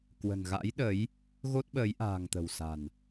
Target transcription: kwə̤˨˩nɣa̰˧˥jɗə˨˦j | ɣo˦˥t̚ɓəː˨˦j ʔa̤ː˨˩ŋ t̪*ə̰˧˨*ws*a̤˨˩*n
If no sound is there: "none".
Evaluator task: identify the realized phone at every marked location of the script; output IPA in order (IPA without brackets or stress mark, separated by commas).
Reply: ə̤˨˩, a̤˨˩